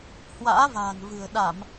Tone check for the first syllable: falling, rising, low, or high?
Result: rising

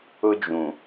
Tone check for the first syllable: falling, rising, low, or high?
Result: high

